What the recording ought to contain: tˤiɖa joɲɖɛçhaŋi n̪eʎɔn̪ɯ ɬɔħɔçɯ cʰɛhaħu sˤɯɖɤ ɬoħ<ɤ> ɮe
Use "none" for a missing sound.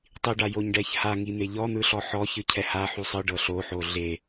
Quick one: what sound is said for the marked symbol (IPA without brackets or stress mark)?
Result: o